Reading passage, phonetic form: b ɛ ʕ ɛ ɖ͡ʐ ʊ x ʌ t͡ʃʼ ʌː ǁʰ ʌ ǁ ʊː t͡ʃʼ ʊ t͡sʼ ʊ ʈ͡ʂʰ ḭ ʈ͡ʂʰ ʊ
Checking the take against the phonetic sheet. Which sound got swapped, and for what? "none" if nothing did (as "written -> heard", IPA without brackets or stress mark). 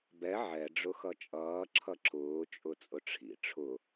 none